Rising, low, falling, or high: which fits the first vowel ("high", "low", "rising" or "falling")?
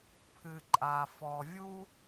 low